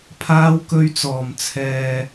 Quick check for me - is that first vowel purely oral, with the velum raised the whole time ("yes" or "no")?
yes